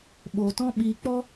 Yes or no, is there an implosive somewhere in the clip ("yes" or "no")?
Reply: yes